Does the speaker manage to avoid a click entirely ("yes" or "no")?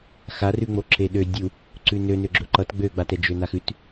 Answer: no